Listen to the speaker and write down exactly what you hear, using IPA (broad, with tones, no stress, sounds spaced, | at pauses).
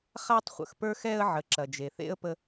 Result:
χ a˧ tˤ χʷ ə̰˩ x p ə˞˧ x ɛ˧ ə̯ ʕ ə˩ ǁ ɐ˩ d͡ʒ e˩ θ ḛ˥ ə̯ p ə˧